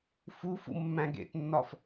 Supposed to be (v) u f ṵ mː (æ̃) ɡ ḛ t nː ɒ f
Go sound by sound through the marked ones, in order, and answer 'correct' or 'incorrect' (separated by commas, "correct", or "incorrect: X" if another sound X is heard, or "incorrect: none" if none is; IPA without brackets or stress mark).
incorrect: f, correct